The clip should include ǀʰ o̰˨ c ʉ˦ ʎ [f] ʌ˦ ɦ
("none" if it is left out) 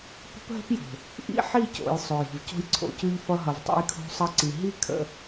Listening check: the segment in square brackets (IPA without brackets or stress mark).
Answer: f